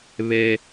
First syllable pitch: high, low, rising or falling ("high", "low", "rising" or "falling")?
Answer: high